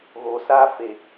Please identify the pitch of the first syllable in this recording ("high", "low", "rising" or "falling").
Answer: low